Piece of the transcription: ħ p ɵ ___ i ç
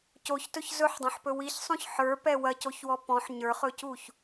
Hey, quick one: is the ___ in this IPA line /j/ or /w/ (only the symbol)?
w